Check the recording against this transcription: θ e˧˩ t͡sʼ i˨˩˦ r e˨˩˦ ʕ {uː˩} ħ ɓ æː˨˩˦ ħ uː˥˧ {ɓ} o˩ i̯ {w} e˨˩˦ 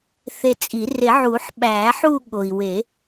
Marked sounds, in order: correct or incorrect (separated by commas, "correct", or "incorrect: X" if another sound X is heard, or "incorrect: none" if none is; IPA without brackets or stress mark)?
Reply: incorrect: uː˨˩˦, incorrect: ɠ, correct